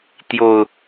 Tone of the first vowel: low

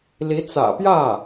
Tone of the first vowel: rising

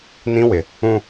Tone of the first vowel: high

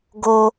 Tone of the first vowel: high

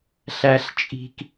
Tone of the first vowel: high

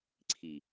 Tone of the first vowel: low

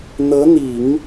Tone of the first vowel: rising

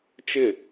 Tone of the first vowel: falling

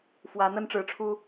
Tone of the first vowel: rising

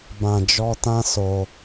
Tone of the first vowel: low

